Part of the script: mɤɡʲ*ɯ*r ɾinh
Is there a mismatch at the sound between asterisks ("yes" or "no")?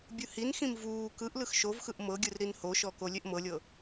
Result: no